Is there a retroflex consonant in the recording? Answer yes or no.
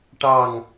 yes